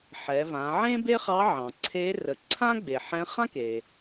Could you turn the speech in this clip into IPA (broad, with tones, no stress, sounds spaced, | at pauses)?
ħ ɛ˩˧ v ã˩˧ ʕ ẽ˥ b e˥ χ ɑ˧˥ ʕ ɑ̃˩ ǀʰ e˧˥ r ə˩˧ ǀʰ ã˥ ɡ͡b e˩ ħ ɛ̃˧˥ χ ã˥ k e˩